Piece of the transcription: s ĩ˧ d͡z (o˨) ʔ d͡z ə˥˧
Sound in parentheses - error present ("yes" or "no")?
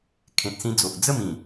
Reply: no